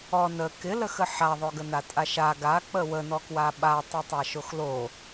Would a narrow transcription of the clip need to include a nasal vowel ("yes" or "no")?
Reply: no